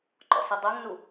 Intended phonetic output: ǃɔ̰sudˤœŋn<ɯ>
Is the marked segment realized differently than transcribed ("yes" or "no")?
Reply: yes